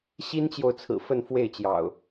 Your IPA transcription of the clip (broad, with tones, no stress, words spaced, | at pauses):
ɕi˦nt͡ɕjo˨ʊ̯t͡sʰɹ̩˨˩ fə˥˨nfwe˥˨ɪ̯t͡ɕjɑ̰˨˩ʊ̯